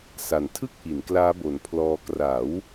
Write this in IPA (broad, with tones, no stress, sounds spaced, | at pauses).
s a˨˩ n tʰ ɯ˥˩ k̚ ʔ i˩˦ n k l aː˦˥ b o˨˩ n pʰ l ɔː˧ k r a˩˦ w